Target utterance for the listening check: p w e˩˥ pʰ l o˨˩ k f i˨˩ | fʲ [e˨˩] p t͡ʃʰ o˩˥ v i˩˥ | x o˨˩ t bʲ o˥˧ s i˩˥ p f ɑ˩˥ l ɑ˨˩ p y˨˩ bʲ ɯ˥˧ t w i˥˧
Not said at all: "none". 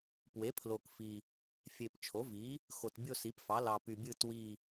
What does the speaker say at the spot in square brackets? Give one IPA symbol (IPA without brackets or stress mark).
e˨˩